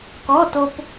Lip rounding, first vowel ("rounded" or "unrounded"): rounded